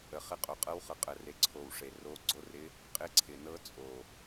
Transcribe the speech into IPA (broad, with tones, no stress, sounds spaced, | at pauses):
ə˨˩ χ ɪ˧˥ qʼ o˨˩ qʼ ɤ˧˥ w χ ɤ˨˩ qʼ ə˨˩ r e˨˩ ǀʰ o˨˩ w ʂ e˨˩ r o˧˥ ɡ͡ǀ o˧˥ r ɪ˧˥ | qʼ ɪ˧˥ ǀʰ ɪ˨˩ n ɤ˧˥ t͡sʼ o˨˩